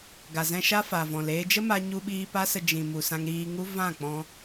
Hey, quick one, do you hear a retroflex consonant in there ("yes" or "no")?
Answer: no